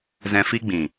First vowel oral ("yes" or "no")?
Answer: no